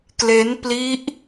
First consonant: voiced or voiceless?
voiceless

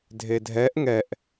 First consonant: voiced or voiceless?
voiced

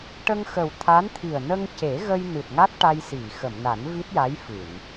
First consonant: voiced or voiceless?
voiceless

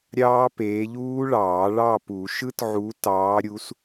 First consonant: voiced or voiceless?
voiced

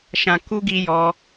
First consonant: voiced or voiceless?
voiceless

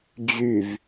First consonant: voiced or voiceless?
voiced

